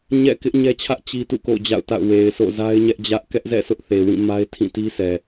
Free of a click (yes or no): yes